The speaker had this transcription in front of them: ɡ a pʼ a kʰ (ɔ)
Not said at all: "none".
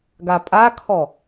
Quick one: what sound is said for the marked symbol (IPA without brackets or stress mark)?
ɔ